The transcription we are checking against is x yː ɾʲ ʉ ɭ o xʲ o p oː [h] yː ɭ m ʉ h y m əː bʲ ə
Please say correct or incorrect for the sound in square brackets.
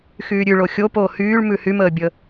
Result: correct